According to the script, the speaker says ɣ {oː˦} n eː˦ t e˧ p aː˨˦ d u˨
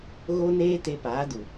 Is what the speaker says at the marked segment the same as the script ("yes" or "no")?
no